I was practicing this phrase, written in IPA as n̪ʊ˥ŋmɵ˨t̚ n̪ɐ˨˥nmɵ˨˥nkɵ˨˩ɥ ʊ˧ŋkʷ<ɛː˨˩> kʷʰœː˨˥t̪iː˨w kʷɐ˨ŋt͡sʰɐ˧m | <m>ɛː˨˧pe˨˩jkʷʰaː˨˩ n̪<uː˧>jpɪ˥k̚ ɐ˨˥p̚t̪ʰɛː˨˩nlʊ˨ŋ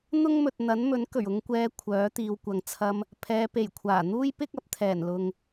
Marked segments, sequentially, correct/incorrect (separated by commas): incorrect, incorrect, incorrect